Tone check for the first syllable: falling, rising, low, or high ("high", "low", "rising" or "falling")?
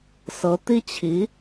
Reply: rising